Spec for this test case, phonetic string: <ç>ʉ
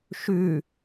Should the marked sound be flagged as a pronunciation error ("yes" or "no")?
yes